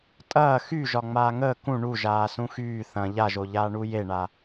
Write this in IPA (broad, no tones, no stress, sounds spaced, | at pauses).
tʼ ɐː x y ʒ ɒ ŋ͡m aː ŋ əː k ũ ɳ u ʒ aː s ũ x yː θ ɐ̃ ʎ a ʒ o ʎ aː ɳ u j e ɳ a